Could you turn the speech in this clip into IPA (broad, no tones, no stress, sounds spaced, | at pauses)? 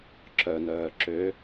ǁ œ n œː ǁ ø